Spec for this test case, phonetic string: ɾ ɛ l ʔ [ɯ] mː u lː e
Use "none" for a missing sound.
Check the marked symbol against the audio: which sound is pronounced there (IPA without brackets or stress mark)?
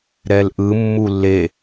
ɯ